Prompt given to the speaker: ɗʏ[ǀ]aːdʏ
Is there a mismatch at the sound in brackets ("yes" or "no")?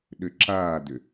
yes